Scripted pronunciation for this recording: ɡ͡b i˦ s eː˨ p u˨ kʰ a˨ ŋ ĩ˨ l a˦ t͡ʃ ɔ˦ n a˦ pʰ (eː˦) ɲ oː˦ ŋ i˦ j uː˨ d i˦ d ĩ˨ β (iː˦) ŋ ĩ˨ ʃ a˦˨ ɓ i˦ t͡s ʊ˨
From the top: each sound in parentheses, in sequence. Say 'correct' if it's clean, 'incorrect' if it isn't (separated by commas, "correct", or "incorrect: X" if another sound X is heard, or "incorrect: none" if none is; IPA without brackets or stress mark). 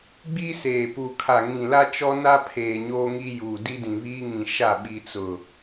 incorrect: eː˨, correct